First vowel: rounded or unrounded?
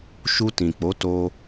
rounded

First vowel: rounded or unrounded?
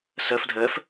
unrounded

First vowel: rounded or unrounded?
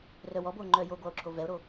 rounded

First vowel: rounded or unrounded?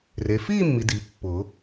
unrounded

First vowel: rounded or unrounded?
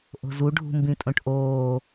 rounded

